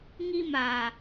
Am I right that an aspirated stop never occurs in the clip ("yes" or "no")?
yes